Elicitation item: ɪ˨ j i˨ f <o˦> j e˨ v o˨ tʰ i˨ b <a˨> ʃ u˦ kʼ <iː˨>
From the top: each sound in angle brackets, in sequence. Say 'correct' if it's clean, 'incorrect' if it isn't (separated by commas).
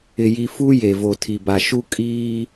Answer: incorrect, correct, incorrect